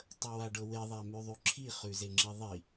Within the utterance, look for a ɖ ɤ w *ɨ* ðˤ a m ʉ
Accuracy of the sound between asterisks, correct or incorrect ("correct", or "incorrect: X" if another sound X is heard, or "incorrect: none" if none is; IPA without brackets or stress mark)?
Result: incorrect: e